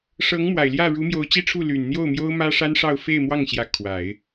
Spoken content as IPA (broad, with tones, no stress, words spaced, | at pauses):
ʂɤ˧˥ŋmwa˨˩ɪ̯ljä˥˩ ɻu˧˥mjo˧˥ʊ̯t͡ɕi˥ʈ͡ʂʰu˥˩ ly˨˩nn̪jo˥˩ʊ̯ mjo˥ʊ̯mä˥ʂa˥nʂɑ˥˧ʊ̯ fe˥˧ɪ̯mwɑ˥˩ŋɕjä˧˥ kʰwa˨˩˦ɪ̯